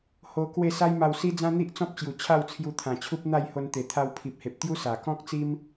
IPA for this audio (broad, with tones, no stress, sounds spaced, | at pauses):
h o˧ k w e˥˧ s a˦ j m a˧ w s i˦ d͡z ã˦ n̪ i˦ ʔ t͡s ɔ̃˦ p̚ t͡ɕ j u˨˩ t͡ɕʰ a˥˧ w t͡sʰ j u˧ t̪ʰ ã˨˩ t͡ɕʰ u˦ p̚ n̪ a˥˧ j h o˧ n t̪ e˨˩ t̪ʰ a˧ w pʰ i˨ p̚ h e˨ p̚ t̪ j u˦ s a˨˩ k ɔ̃˦ k̚ t͡s i˦ m